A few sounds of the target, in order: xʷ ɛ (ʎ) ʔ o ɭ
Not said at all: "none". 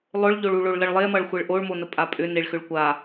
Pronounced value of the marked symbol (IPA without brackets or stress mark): ɭ